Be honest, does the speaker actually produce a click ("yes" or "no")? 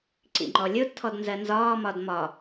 yes